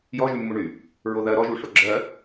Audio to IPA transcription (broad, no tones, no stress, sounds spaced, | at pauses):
j ɔ ʒ y mː u ɳ y | ɹ o ð ɜ ɾ ɔ ʒ u ʂ o ɡ͡ǁ ɜ